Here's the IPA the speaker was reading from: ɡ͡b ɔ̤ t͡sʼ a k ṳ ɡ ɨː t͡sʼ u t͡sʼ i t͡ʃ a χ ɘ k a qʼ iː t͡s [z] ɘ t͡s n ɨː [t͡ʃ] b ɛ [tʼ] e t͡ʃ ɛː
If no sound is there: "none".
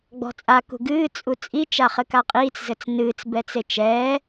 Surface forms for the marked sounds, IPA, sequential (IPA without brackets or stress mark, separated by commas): z, t͡s, t͡s